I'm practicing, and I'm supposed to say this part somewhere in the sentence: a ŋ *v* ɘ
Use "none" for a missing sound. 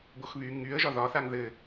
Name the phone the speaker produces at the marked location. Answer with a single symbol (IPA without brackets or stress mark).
ð